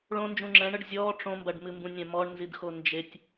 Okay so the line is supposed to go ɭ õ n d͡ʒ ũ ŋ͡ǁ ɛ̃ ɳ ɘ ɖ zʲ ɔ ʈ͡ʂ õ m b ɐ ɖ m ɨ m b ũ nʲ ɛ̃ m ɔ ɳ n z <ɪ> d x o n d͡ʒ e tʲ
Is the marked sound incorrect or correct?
incorrect